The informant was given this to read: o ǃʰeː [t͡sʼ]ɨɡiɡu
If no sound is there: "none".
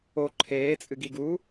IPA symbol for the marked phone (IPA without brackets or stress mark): t͡sʼ